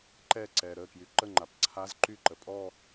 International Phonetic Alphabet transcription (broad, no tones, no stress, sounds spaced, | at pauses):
ǃ ɛ ǀ ɛ ɾ ə k j y ǃ ə ŋ͡ǃ a p ǀʰ a z ǃ y ǃ ə pʼ ɔ